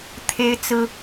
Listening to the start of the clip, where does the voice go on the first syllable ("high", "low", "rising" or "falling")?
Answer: high